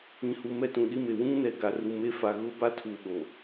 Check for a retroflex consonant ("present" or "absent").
absent